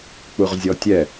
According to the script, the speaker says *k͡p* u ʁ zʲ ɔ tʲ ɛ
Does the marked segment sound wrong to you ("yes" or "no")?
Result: no